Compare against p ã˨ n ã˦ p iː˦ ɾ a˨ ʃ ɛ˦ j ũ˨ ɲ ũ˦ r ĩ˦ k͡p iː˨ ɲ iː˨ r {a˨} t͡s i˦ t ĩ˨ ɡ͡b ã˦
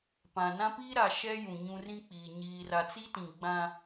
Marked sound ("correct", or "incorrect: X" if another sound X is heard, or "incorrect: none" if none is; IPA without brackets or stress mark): correct